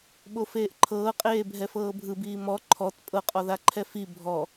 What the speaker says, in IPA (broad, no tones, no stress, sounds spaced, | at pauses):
ɓ o f eː ʔ ǃʰ ɤː qʼ eː bʱ ɛ f ɤː bʱ ɯ b iː m ɔ ǃʰ ɔ t pʼ ɤ qʼ ɔ ð a ǃʰ ɛ f i bʱ ɔ